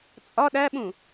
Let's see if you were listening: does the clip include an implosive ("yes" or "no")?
yes